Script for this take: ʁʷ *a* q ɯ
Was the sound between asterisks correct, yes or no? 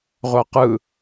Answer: yes